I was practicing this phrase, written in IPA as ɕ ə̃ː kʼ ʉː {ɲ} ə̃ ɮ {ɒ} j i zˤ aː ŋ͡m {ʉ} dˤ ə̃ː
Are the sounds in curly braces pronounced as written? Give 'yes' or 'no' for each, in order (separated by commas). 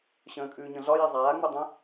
yes, yes, yes